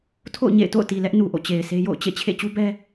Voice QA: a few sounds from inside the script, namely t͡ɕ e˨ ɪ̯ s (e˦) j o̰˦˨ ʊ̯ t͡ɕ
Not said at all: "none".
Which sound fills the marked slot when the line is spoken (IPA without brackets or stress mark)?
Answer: e˦